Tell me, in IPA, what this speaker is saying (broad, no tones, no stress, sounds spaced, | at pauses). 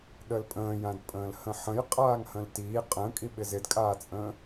ɗ ə l pʼ ə̃ː j ã d pʼ ə̃ː l h ə̃ ħ ə̃ j qʼ aː ŋ h ə̃ l t iː qʼ ə̃ː kʼ i ɓ ɪ z ɪ d kʼ aː t͡sʼ ə̃ː